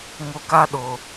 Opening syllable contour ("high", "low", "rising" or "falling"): low